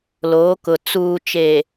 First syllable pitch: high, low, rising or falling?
rising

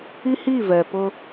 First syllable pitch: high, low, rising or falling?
high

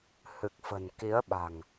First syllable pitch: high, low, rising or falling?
low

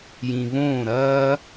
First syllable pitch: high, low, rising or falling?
low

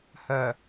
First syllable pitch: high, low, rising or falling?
low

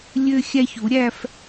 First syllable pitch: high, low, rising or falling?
high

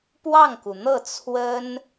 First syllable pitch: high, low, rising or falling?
falling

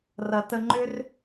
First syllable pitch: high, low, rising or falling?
low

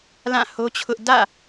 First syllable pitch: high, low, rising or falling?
falling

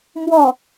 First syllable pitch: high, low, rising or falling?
falling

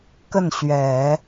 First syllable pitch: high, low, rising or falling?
falling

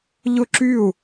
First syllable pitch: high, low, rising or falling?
falling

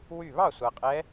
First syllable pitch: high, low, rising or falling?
falling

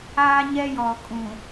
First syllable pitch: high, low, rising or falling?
high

